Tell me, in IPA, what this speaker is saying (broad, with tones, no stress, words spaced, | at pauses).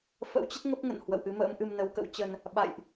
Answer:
fə̰˧˥wt͡ɕə˦˥t̚ ŋə˦˥p̚ŋə̰˧˨n hwə̰˧˨wʔɨ˨˦mə̰ː˧˥mʔɨ˧m nə˨˦wkə̰˧˥wt͡ɕə˧n | ɓa̰˧˨jʔ